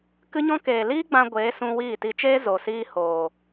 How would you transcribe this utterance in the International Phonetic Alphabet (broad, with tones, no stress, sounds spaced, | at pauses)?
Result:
k ɨ˦ ɲ ɔ̃˦ k eː˨ l iː˦ ɡ͡b ã˧ ɡʷ eː˨˦ s ũ˧ w iː˦˨ t i˧ t͡ʃ eː˦ z o˨ s iː˧ h oː˨